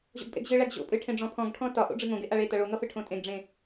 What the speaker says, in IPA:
ʑ o̰ ɡ pʼ ḛ ɡ ʑ ɨ ɭ æ ɡ ʑ o̰ pʼ ɨ ʈʰ ẽ ɖ͡ʐ ɔ̃ pʰ ɔ̃ ɡ ʈʰ ɔ̃ t ɒ ʔ o̰ ɖ͡ʐ ɨ ŋ õ ɡ e ʔ a ɭ e t ʌ ɭ o ŋ ʌ f ɨ ʈʰ õ tʼ ẽ ɡ ɖ͡ʐ ẽ

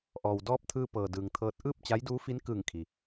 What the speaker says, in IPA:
ʔ ɔː˩ w d ɔː˧˥ p̚ t̪ʰ ɯː˧ p ɤː˩ d ɯː˩ ŋ t̪ʰ ɤː˧ t̚ ʔ ɯː˥˨ p̚ t͡ɕ a˧˥ j d uː˧˥ f i˧˥ n k ɯː˧˩ ŋ kʰ i˩

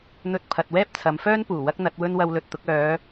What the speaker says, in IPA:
n̪ ɵ˧ t̚ pʰ ɐ˨ t̚ w ɛː˥ p̚ t͡sʰ ɐ˨˧ m f œː˥ n p uː˨˩ w ɐ˥ k̚ n̪ ɐ˨˥ t̚ w ɵ˥ n w ɐ˧ w l ɵ˨ t̚ t̪ ʊ˨˥ k̚ œː˨˧

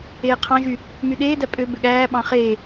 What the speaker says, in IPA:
eː qʰ ɑ̃ ʒ y | m y ɗ eː d æ pʼ ø b ø ɠ æː ɓ ɑ̃ χ e

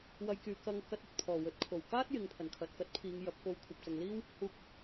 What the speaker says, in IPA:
w ɐ˧ j k yː˨˧ k ɐ˧ ŋ k ɐ˧ t̚ ɵ˨ t̚ pʰ ɔː˨˩ w ɵ˨˥ t̚ kʰ o˨˩ w k aː˥ t̚ j ɪ˨ ŋ pʰ ɐ˨˩ n kʰ ɐ˨ t̚ k ɐ˨˥ t̚ pʰ iː˨˧ ŋ j ɐ˨˥ p̚ k o˨ w kʷʰ ɐ˨ p̚ t͡s ɐ˨ ŋ l iː˥ w | h uː˧ k̚

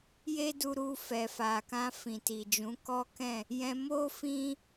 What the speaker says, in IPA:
j e˦ d u˧ ɾ u˧ f ɛ˨ f a˨ k ã˧ f ĩ˨ t i˨ d͡ʒ ũ˨˦ k ɔ˦ k ɛ̃˦˨ | j ɛ̃˧ m o˦ f ĩ˦

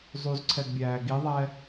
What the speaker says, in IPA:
zˤ u z ǀʰ ɛ ɡ bʲ æː ɡ i ðˤ ɛ

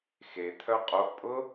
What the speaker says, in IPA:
x e t̪ʰ œ qʼ o ʔ pʼ ʊ

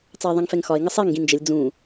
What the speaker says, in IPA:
t͡s ɑ e̯ ðˤ ĩ ŋ f ɛ ŋ x ɒ e̯ ŋ ə sˤ e ŋ ɡ ĩ n d͡ʒ ə lʲ d͡z ũ

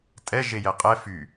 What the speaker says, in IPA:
tʼ ɛ ʒ e j ɛ qʼ ɛ f y

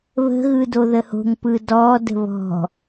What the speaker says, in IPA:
β ə̤ ɣ ɯ d o ð ə h o̤ ŋ p ɯ d ɔ d ə̤ β ɔ̤

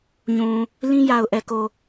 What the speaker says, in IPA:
ɲ ũ˨ | l ĩ˦ j a˨ ʊ̯ ʔ ɛ˨ k o˨

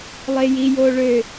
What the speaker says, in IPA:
lˠ e j i j o ɭ ø

